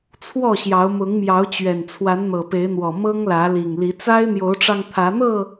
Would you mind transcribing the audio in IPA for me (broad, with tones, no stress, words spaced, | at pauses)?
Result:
t͡sʰwɔ˥˨ɕjɑ˨˦ʊ̯ mʊ˨˦ŋmjɑ˨˦ʊ̯t͡ɕɥɛ˨˩n t͡sʰwa˨˦nn̪ɤ˨˩pe˨˦ɪ̯n̪wɔ˨˩ mɤ˦ŋlä˨˦li˨˩ŋli˨˦ t͡sa˦ɪ̯n̪jo˨˦ʊ̯ʈ͡ʂɑ˧ŋ t̪ʰä˨˦n̪ɤ˥˨